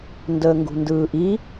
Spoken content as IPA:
n d əː ŋ ɡ ṳ n d ɯː ʔ i

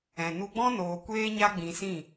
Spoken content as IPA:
ɛ̃˨ n u˧ ɡ͡b ɔ̃˦ n oː˨ kʷ eː˦ ɲ a˦ ɡ͡b ĩ˧ s ĩ˦˨

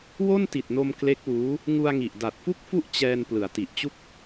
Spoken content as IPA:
w o˥˩ n t i˨˩ t̚ n o˧ m k l e˦˥ k̚ w uː˦˥ | ŋ u˧ a̯ ŋ i˨˩ ʔ d a˨˩ t̚ f u˥˩ k̚ f u˥˩ ʔ t͡ɕ ɛː˧ n p l ɯ˩˦ a̯ t i˨˩ ʔ t͡ɕ u˥˩ k̚

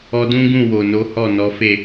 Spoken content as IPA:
ɔ˧ d ũ˦ ɡ ũ˦˨ w o˨ n o˨˦ h ɔ˦˨ n ɔ˨˦ f e˦˨

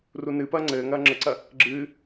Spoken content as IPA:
r u n ɨ p ɐː ŋ͡ǀ ɘː ŋ ɐː ŋ͡ǁ ɘ ǀ ɐ | ɡ͡ǁ ɨː

